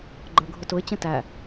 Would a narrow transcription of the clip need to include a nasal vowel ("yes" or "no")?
yes